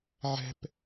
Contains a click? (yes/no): no